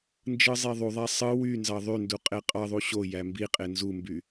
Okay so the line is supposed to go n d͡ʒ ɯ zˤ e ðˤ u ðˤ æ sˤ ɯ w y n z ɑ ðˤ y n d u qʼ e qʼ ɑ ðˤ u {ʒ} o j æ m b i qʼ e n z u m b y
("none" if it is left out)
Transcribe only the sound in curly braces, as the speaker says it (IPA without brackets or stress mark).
ɕ